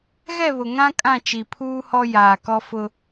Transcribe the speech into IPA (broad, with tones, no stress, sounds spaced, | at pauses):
ɣ ɛ˦˨ β ʊ˨ ŋ ã˦ kʼ ã˦˨ t͡ʃ i˨ pʰ uː˦ h ɔ˦ j aː˨ k ɔ˦ f ʊ˦